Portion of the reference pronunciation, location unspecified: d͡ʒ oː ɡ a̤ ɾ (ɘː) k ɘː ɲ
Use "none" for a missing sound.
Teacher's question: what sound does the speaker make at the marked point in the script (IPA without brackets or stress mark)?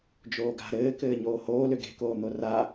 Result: ɘː